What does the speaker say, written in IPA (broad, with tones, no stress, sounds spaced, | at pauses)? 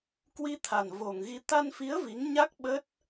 k w i˧ t̪ʰ a˨˩ n v o˨˩ ŋ ɣ i˧ t̪ a˧ n f i˨˦ ə̯ v i˨˦ ŋ ɲ a˦˥ k̚ ɓ ə˦˥ t̚